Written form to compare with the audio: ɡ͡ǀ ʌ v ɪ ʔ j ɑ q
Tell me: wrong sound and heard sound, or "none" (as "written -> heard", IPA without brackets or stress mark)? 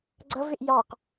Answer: none